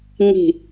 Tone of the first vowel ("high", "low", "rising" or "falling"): falling